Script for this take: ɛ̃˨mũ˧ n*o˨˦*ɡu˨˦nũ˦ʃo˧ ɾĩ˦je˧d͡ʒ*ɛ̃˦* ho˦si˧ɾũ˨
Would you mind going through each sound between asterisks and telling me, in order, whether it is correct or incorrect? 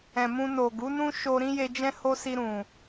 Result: incorrect: o˨, correct

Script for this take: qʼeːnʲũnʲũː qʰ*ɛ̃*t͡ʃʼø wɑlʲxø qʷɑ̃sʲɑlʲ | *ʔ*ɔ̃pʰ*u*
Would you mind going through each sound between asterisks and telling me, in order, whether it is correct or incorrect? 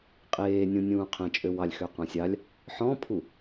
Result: correct, incorrect: ħ, correct

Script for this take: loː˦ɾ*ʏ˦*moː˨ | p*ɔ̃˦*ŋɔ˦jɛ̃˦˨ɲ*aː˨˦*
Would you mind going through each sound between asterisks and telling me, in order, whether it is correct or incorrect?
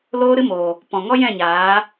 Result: incorrect: ɨ˦, incorrect: ɔ̃˨, correct

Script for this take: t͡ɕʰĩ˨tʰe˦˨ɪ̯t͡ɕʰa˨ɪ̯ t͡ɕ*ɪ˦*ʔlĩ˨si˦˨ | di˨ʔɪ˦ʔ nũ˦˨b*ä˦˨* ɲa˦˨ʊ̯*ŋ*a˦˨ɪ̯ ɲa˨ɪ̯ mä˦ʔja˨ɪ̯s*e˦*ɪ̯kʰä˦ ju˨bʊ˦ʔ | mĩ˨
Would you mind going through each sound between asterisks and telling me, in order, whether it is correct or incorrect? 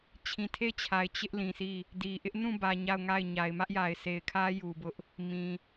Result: correct, incorrect: ä˨, correct, incorrect: e˨

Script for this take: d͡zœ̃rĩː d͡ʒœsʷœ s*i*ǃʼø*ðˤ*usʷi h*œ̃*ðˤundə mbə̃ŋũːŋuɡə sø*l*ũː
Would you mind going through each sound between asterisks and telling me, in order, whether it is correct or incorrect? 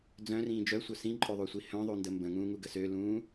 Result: incorrect: ĩ, correct, correct, correct

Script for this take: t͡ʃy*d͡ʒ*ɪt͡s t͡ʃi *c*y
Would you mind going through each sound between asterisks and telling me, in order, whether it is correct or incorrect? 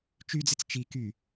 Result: incorrect: d͡z, incorrect: k

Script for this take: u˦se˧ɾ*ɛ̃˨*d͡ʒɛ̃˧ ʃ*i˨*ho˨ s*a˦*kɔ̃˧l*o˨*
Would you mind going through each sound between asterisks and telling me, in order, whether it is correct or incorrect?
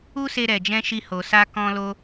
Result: incorrect: ɛ˨, incorrect: i˧, incorrect: a˧, incorrect: o˧

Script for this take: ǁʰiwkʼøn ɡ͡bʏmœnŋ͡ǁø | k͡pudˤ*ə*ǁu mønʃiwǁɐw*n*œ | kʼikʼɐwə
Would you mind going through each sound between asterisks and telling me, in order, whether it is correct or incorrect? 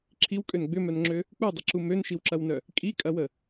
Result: incorrect: ɪ, correct

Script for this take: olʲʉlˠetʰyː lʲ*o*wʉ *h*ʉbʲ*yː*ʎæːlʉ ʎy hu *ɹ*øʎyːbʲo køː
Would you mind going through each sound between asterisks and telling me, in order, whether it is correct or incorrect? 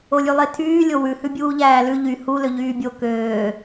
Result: correct, correct, incorrect: uː, incorrect: l

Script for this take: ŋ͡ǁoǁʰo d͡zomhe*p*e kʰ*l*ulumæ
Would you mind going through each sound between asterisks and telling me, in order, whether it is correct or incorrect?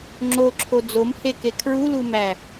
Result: incorrect: k, incorrect: ɹ

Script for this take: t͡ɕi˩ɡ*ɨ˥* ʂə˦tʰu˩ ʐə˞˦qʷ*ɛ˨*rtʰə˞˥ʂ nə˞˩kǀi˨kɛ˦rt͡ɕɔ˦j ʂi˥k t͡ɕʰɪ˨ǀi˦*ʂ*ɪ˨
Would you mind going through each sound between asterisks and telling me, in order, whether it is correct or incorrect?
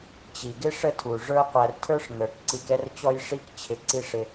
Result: incorrect: ɪ˥, incorrect: æ˨, correct

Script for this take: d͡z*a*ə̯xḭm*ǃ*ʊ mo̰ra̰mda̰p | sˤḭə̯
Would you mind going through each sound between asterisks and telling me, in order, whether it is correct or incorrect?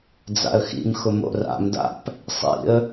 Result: incorrect: a̰, incorrect: x

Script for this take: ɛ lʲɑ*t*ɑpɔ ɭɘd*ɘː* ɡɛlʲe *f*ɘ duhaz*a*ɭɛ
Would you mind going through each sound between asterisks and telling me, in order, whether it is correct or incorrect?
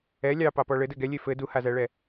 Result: incorrect: p, incorrect: ɘ, correct, incorrect: æ

